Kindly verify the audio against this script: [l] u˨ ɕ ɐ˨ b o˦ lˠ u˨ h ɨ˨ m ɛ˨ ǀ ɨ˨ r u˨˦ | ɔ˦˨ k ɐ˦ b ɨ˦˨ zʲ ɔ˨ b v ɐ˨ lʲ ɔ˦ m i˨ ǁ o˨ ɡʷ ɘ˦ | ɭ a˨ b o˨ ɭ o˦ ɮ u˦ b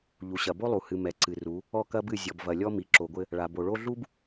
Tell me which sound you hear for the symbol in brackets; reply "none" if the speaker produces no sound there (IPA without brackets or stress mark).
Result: ʎ